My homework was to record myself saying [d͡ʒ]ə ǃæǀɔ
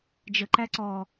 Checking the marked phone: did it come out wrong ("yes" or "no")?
no